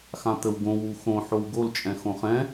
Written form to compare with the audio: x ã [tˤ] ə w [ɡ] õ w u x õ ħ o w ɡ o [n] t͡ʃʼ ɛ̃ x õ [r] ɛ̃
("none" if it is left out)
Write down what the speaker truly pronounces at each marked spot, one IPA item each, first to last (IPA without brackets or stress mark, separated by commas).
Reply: t̪, ɡ, l, χ